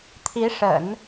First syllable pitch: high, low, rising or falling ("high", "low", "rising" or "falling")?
rising